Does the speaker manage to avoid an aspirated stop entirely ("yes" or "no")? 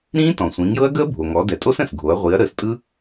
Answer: yes